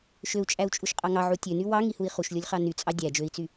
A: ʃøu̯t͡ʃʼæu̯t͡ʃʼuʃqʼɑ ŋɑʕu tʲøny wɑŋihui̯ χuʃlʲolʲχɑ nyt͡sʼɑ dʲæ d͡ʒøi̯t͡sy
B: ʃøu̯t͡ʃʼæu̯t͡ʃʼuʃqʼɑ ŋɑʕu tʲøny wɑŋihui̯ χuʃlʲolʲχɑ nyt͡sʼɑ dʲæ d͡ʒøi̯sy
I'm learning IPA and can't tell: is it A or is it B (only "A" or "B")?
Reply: A